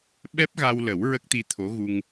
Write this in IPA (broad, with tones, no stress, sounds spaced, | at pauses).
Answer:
ɓ ɛ˦˥ p̚ ɣ a˧ w l ə˨˩˦ w ɹ ə˦˥ k̚ t̪ i˧ t̪ʰ o˧˥ ɣ u˧ ŋ